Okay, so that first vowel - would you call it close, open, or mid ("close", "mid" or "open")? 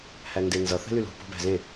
open